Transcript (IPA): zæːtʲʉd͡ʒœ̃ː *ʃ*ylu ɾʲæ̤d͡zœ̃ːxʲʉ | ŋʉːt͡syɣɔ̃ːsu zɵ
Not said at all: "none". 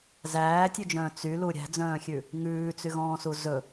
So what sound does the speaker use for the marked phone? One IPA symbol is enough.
t͡s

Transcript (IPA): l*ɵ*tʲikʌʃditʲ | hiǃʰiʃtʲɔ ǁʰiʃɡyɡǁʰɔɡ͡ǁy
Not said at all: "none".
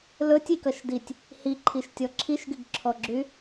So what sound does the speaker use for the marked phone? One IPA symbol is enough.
ɵ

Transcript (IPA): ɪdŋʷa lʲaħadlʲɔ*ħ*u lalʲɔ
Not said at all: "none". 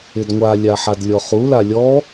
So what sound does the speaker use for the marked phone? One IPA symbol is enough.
χ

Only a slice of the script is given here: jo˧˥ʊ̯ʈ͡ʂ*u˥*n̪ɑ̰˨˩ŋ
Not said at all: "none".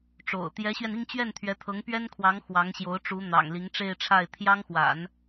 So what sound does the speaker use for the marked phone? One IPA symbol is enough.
u˧˥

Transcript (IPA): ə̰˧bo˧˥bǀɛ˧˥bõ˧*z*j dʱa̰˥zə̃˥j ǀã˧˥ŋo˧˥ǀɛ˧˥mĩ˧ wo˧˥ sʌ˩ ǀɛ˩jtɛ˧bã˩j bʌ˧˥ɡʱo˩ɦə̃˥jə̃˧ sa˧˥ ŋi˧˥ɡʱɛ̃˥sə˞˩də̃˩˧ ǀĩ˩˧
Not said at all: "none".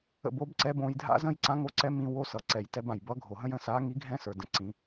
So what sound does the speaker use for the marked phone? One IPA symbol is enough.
none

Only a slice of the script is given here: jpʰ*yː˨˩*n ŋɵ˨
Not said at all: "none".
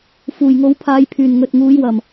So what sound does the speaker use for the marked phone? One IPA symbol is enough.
yː˨˩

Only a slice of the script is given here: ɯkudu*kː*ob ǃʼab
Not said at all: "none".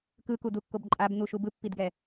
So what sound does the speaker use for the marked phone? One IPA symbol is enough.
kː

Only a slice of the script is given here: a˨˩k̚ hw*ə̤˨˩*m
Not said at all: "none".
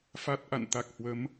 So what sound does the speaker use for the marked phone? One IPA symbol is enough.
ə˨˦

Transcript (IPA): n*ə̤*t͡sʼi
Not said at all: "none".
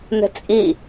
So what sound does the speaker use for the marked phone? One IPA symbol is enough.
ə̤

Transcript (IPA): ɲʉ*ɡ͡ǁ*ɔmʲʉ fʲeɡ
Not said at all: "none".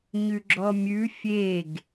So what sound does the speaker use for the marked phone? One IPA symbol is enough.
ɡ͡ǁ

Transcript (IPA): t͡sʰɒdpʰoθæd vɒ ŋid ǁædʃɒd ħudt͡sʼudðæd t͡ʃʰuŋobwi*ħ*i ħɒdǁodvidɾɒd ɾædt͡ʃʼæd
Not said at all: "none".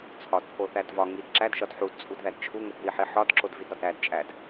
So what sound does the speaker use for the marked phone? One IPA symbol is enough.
ħ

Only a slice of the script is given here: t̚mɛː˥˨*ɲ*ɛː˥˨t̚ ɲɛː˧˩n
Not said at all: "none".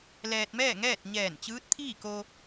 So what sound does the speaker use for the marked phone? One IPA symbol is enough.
ŋ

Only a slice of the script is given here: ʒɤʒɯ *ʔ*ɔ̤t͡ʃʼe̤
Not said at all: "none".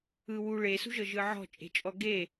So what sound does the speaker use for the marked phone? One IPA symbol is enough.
ʕ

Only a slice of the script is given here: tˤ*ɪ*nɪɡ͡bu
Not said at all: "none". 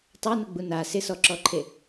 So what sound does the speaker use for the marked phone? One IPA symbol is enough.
ɛ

